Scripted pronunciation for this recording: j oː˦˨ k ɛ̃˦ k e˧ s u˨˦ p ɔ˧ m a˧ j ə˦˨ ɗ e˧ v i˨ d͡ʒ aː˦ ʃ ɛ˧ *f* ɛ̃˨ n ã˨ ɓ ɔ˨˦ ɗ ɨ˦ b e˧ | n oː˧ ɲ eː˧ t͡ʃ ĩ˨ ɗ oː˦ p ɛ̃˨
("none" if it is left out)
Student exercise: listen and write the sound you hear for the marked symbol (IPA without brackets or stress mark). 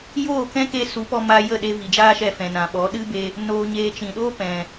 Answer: f